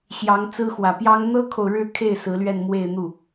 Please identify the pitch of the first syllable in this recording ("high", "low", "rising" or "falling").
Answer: rising